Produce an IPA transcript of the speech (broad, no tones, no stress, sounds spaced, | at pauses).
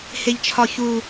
h e ʎ t͡ʃʰ ɒ ç u